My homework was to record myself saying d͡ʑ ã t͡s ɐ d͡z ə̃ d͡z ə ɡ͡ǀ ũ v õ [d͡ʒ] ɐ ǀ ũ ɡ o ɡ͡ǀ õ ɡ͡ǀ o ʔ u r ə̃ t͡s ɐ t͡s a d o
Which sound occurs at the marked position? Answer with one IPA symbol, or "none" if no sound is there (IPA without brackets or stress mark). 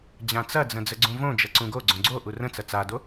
d͡ʒ